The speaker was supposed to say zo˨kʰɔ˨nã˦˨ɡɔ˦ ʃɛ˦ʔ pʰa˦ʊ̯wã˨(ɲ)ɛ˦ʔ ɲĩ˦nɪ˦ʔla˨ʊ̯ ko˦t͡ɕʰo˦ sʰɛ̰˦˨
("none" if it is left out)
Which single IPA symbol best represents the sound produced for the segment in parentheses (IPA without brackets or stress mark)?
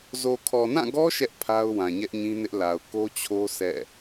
ɲ